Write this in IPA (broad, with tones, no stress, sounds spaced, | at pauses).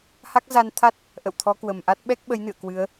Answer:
h a˦˥ k̚ z a˧ n t̪ʰ a˦˥ t̚ | ʔ ə̰˧˨ w t̪ʰ ɔ˨˦ k w ə˨˩ m ʔ a˦˥ t̚ ɓ ɛ˦˥ k̚ ɓ ə˨˦ j n ɨ̰˧˨ ə̯ k w ɨ˨˦ ə̯